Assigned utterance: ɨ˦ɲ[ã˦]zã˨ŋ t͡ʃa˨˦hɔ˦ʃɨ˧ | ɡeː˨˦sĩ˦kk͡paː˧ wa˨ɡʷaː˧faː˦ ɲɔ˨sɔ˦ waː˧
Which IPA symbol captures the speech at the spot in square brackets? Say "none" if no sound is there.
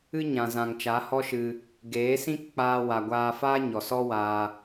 ã˨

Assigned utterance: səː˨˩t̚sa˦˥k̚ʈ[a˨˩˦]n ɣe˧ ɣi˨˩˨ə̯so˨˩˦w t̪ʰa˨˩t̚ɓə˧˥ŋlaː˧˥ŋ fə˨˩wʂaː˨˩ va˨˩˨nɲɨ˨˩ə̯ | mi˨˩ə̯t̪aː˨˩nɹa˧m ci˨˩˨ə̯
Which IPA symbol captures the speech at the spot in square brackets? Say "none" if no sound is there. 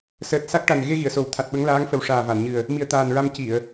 a˨˩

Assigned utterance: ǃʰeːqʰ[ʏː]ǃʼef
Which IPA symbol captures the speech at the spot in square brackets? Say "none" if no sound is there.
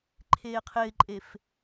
ɪː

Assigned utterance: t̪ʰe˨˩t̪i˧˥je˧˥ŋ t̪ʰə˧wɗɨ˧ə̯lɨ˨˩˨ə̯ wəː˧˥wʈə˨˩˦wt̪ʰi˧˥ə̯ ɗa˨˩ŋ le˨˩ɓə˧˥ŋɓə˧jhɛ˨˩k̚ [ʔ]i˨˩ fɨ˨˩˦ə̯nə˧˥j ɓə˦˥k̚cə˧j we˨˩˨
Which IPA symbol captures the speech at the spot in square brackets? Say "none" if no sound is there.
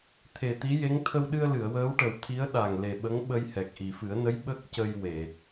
ʔ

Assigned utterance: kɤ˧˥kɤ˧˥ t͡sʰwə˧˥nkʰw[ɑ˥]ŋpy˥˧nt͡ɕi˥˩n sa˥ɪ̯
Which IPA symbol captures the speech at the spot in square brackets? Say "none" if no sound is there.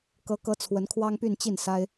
ɑ˥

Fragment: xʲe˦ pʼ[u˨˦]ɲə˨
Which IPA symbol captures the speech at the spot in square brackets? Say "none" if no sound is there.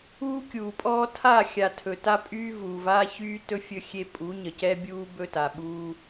u˨˦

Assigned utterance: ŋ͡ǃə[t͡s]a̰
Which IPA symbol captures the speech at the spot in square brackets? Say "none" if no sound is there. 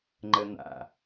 n̪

